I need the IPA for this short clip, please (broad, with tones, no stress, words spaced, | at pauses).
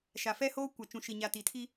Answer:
ʃa˨fɛ˦hoː˦ kʷa˨t͡ʃũ˨ ʃi˨ɲa˨ tiː˨tʰi˦